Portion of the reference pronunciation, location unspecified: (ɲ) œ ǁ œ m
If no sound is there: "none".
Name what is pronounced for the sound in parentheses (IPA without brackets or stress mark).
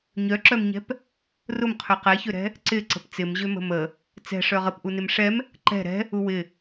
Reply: ɲ